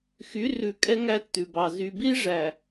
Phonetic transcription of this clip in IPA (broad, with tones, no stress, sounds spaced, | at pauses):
x y˨˦ r ʉ˨ kʼ ɛ˦ ŋ æ˦ tː ʉ˨ b ɑ˨ z y˨ b i˦ ʐ æ˨